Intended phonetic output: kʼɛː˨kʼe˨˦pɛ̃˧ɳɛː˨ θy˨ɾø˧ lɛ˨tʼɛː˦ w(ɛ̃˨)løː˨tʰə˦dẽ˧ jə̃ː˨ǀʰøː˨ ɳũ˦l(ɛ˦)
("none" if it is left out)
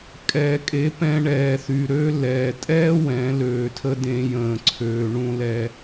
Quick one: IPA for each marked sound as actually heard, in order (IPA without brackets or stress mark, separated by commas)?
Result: ɛ̃˨˦, ɛ˦